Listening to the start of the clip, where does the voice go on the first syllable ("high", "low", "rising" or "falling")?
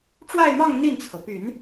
falling